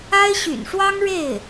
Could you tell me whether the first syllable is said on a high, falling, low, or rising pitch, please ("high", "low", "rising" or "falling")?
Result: high